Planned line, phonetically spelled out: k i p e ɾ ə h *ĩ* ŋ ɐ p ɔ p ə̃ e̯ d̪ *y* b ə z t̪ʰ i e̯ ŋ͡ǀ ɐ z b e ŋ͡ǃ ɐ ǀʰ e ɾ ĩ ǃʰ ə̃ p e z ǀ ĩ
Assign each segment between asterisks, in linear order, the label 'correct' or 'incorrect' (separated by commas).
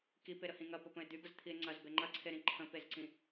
correct, correct